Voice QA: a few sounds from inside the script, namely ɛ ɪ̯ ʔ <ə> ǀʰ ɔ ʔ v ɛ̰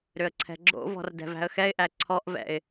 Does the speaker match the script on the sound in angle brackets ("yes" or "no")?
no